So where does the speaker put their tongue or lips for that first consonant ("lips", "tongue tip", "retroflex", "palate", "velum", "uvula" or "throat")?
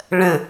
retroflex